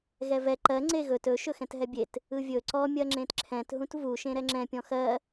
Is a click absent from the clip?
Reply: no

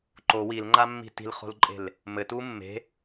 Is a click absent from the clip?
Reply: no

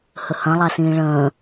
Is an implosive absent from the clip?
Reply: yes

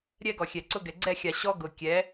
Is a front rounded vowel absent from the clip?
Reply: yes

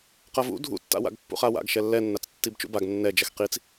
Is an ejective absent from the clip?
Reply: yes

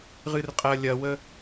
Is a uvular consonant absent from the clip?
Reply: no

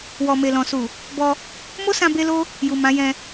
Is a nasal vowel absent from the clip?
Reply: no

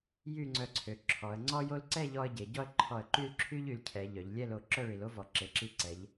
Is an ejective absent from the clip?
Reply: yes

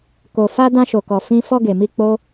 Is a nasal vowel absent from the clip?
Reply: no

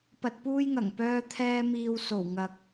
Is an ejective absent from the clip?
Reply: yes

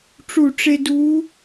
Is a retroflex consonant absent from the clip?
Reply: no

